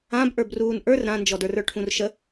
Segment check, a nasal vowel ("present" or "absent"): present